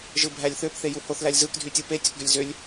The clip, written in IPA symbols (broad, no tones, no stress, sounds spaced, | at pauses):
ʒ ɯ bʱ æ lʲ θ ø p θ e j u h o θ l æ lʲ z ɯ k dʱ y tʲ ɯ p e tʲ o k ɡ ø lʲ z ø lʲ